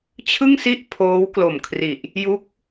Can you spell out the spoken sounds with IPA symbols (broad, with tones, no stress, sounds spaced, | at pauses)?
t͡ɕʰ ɯ˥˩ ŋ s i˥˩ ʔ pʰ oː˦˥ w k l o˨˩ m kʰ r i˨˩ ʔ | j u˦˥ k̚